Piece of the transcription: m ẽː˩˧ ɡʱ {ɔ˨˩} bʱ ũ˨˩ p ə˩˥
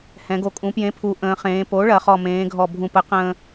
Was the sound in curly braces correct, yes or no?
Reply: yes